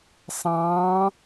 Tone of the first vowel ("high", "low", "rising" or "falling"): rising